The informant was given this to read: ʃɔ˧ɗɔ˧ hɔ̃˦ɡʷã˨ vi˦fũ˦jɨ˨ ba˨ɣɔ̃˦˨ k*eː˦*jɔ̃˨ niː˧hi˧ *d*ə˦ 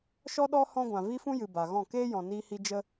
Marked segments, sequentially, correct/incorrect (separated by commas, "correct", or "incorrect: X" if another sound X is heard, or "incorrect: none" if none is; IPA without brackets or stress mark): correct, incorrect: d͡ʒ